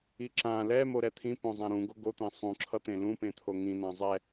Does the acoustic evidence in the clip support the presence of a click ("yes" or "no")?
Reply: yes